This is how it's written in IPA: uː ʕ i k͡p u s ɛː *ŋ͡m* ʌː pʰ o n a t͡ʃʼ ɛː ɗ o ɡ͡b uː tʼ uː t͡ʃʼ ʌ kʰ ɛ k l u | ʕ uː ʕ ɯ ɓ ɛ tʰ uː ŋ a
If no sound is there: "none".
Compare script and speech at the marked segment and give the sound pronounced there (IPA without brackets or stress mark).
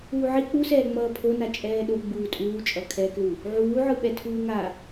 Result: ŋ͡m